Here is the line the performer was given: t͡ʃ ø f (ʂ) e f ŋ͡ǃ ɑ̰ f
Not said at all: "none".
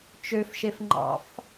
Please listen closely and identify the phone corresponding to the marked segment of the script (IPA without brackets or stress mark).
ʃ